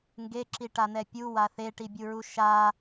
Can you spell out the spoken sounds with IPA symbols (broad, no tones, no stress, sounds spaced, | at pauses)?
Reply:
ŋ ɡ e ǁ i ʈ a n̪ ɛ pʲ u w a θ e ʈ i bʲ u ɹ u ʃ a